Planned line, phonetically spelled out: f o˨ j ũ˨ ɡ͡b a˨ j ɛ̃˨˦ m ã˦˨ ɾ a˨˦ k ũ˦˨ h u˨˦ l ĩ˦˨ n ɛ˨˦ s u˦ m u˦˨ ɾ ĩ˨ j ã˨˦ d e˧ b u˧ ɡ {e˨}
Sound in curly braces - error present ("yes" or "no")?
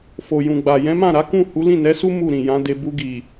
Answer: yes